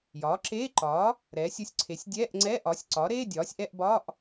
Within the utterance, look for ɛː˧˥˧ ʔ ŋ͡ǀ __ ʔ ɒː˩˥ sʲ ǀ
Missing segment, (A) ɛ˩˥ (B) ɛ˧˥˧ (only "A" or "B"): B